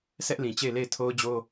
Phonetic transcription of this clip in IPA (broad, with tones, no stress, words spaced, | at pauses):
sɛ˦ʔlĩ˨t͡ɕe˦˨ɪ̯le˦˨ɪ̯ tʰo˦ʊ̯d͡ʑo˦